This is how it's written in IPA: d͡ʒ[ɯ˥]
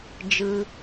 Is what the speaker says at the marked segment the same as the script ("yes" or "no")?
no